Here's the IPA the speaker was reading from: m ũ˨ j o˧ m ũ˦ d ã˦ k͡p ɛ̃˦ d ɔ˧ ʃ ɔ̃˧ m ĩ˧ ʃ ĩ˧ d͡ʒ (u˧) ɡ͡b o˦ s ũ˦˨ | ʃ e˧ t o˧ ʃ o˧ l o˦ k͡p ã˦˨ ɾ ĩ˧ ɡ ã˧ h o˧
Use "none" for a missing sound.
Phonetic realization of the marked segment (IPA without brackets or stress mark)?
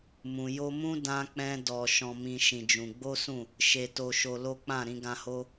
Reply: ũ˧